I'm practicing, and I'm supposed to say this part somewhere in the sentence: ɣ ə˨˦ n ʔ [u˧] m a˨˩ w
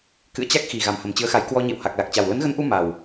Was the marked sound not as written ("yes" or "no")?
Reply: no